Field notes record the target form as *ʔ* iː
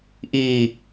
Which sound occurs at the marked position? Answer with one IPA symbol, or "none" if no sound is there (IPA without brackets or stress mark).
ʔ